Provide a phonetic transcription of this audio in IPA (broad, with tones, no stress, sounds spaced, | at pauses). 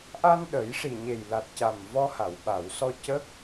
ʔ a˧ n ɗ ə˨˩˦ j ʂ i˨˩ ɲ e˨˩ j l a˨˩ t̚ c a˨˩ m v ɔ˧ h a˨˩˨ w ɓ a˨˩˨ w s ɔ˧ c ə˦˥ k̚